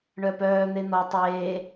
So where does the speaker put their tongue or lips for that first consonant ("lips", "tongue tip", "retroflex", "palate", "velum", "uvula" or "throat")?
retroflex